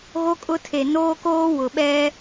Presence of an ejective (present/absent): present